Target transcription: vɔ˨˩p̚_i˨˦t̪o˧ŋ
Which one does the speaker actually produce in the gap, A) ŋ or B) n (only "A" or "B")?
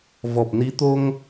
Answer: B